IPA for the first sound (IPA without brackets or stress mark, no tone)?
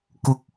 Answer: k